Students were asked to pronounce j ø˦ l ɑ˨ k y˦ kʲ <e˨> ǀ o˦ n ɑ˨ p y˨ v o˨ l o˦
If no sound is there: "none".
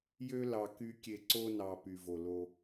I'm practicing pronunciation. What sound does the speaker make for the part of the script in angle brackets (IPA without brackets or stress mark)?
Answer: e˨